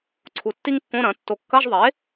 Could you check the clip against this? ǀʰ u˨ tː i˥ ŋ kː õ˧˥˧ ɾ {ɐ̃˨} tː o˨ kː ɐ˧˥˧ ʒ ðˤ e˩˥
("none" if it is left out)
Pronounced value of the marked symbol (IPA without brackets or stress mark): ɐ̃˩˥